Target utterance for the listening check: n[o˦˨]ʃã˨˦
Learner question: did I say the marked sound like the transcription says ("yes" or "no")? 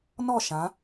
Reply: no